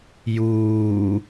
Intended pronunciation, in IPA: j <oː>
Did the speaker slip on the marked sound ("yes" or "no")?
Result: yes